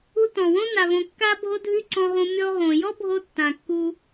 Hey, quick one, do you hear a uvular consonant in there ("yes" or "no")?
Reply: no